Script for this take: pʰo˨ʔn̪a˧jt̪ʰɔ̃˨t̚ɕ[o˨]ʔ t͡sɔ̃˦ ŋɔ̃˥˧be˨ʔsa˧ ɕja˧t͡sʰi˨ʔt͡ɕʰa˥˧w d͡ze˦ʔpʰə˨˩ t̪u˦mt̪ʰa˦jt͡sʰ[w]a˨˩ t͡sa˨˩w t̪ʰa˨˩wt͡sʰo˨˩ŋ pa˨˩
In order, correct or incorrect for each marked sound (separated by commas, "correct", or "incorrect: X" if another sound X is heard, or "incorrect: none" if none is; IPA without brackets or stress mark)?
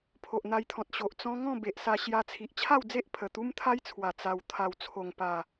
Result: correct, correct